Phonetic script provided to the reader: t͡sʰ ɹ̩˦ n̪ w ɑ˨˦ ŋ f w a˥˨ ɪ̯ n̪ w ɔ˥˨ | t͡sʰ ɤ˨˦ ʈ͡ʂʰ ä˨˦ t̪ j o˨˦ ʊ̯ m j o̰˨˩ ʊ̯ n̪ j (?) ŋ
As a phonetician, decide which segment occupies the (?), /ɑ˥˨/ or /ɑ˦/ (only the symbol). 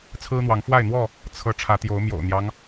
ɑ˦